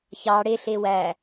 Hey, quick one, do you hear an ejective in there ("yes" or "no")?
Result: no